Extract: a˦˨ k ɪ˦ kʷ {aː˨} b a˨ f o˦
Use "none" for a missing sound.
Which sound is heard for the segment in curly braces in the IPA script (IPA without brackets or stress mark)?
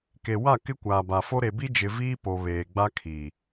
aː˨